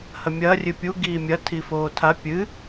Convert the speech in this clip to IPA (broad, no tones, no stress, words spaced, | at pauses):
hɐmʲɐː rʲɨpʲu ɡiːmʲɐ tʰifoːtʰa pʲɨ